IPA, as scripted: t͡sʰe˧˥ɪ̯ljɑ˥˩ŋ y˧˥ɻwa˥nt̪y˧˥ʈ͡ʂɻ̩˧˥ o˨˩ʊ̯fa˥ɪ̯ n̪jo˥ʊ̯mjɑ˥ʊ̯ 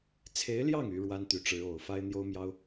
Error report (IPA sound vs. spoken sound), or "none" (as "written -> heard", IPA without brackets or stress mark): none